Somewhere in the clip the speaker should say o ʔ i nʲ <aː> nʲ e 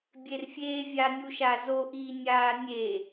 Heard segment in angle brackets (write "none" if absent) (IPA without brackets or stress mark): aː